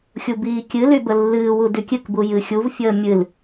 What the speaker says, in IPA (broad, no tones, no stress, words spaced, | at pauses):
xʲubiːkʲɨly bəlːɨːwu dykʲɨkbu jɨxʲuvfʲəː mʲɨl